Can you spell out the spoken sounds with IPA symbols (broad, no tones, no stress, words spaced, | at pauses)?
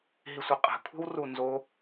ɦisʷɘqʼɛ̤kʷʰe̤w runzo